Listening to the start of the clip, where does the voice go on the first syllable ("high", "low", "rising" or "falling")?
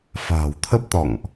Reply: low